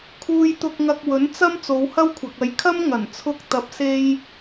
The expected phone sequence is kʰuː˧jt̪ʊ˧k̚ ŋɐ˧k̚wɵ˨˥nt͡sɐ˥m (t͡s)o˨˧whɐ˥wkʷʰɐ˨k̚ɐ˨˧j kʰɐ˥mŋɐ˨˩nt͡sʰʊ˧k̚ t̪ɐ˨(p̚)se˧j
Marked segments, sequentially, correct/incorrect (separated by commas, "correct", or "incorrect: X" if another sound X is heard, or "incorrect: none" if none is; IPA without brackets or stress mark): correct, correct